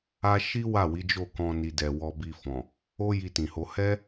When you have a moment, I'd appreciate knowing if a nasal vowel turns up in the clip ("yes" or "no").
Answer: yes